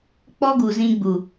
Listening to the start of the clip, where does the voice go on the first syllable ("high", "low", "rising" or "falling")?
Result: high